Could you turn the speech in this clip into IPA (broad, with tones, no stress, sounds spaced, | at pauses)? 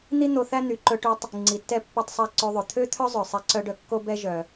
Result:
n̪ i˥ n̪ o˧ θ æ˥ n̪ y˩ ǃ ɵ˧ ʈ y˧ tˤ | ŋ͡ǀ i˩ tː ɛ˧ pː œ˧ tˤ sˤ æ˧ ǀ ø˧ ðˤ ɵ˩ t̪ʰ ø˥ t̪ʰ œ˥ zˤ œ˩ sˤ ɛ˧ ǀ œ˧ ɖ œ˧ kː o˥ b ɛ˥ ʒ œ˩